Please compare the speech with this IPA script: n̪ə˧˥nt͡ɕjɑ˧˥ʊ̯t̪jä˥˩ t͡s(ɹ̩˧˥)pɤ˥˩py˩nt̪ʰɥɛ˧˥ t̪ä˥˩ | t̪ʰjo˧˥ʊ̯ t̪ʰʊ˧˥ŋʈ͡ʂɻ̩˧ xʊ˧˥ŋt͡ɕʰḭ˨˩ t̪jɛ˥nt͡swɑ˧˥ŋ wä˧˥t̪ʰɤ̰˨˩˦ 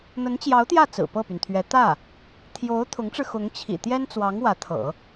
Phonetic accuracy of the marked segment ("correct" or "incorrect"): incorrect